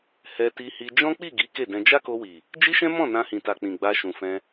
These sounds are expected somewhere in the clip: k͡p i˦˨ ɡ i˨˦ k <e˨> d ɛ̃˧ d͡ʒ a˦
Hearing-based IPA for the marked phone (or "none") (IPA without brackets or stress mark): e˦˨